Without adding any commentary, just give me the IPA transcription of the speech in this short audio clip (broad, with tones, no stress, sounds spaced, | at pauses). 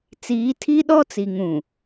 t͡s iː˨˦ tʰ i˦ ɗ ɔ˦ t͡s i˨ ŋ ũ˨